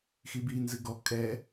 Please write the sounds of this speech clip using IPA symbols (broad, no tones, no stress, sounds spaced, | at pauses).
x i b i n z ɨ ɡ ɔ kʼ ɛ